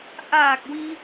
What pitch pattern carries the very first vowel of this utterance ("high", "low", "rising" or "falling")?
low